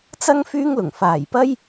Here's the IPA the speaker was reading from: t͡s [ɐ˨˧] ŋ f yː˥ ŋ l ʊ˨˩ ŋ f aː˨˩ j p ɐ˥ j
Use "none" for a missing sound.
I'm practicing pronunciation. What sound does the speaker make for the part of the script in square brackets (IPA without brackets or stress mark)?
ɐ˥